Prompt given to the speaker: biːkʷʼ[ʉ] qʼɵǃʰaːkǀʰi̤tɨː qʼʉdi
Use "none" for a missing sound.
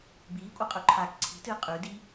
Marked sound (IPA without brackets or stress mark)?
ɨ